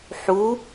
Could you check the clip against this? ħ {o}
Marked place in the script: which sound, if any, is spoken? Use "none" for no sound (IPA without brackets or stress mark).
u